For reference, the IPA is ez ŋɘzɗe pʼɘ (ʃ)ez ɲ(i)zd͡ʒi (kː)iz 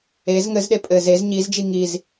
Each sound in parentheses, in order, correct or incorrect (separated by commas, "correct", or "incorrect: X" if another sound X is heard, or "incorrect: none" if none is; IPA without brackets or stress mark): incorrect: z, correct, incorrect: ŋ